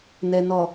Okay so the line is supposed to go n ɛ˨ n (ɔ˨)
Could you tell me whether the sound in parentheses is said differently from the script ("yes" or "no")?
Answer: no